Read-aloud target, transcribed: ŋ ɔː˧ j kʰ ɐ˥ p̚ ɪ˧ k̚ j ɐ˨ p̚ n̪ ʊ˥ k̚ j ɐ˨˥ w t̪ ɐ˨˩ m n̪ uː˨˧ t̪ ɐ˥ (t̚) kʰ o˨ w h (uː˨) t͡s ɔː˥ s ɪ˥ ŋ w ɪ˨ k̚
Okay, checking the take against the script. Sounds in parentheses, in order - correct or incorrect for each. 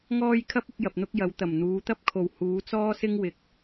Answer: incorrect: p̚, incorrect: uː˨˥

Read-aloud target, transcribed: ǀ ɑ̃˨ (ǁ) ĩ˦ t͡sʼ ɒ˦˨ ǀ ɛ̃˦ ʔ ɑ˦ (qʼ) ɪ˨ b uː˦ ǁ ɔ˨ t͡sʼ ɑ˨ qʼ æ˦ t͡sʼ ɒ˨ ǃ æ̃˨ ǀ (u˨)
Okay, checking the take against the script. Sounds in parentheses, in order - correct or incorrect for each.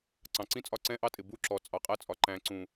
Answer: incorrect: ǀ, incorrect: tʼ, incorrect: ũ˨

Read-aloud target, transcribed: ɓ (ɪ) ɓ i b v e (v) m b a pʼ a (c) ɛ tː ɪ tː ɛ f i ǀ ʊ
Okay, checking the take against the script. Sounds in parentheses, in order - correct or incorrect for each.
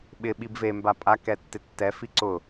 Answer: correct, incorrect: none, incorrect: k

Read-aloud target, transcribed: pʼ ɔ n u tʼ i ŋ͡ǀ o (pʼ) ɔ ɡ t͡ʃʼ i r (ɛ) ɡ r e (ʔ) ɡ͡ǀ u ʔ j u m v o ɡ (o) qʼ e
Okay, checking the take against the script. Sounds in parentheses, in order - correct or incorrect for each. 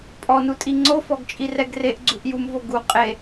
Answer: incorrect: f, correct, correct, incorrect: u

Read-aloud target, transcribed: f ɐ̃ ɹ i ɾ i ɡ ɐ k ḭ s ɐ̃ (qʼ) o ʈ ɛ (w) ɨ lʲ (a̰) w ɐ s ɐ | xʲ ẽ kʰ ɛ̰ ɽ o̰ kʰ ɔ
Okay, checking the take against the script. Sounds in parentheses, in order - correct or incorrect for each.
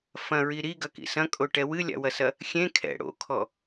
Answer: incorrect: kʼ, correct, correct

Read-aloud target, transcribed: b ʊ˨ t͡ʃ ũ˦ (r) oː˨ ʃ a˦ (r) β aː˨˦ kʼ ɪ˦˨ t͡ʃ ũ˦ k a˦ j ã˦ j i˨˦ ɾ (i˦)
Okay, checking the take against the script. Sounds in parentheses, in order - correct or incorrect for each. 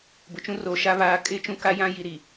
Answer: correct, incorrect: none, incorrect: i˨

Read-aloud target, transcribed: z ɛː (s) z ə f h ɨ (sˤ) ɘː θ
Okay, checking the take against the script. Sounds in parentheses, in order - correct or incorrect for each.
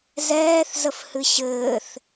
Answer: incorrect: θ, incorrect: ɕ

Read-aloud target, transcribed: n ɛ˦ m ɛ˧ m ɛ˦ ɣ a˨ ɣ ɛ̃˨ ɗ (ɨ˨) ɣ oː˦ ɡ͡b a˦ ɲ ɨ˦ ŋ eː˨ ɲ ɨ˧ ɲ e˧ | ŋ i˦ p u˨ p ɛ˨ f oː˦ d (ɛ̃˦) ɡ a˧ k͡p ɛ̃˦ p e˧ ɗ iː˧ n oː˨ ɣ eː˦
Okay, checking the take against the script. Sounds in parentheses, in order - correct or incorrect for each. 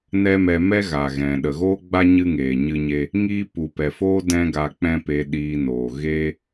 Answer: incorrect: ə˨, correct

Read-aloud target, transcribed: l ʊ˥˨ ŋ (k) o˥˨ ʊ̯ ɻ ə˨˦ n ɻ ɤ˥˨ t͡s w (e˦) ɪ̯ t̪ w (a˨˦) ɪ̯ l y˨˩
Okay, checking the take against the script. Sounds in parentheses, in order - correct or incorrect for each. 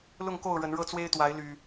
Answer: correct, correct, correct

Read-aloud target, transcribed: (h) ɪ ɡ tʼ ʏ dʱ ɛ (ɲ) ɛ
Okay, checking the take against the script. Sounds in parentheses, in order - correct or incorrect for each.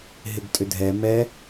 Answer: incorrect: ɦ, incorrect: m

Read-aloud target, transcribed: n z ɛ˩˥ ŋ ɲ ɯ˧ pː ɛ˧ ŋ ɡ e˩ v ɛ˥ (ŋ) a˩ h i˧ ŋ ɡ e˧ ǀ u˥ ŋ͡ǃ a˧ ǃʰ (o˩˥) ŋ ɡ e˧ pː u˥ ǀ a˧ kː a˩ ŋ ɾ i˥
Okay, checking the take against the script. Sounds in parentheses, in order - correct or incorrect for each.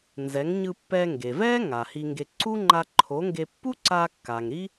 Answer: correct, correct

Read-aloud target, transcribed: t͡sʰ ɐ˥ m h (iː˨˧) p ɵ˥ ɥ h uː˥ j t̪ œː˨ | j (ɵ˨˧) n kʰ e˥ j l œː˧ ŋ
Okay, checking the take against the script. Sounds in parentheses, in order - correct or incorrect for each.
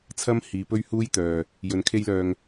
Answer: correct, correct

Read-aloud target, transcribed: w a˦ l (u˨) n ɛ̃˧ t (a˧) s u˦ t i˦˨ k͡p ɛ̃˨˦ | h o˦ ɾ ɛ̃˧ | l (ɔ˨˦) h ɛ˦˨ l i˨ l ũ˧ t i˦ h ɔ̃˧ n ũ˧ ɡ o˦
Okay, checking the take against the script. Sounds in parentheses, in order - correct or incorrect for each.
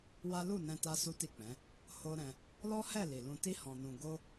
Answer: incorrect: u˦˨, incorrect: a˦, incorrect: ɔ˦

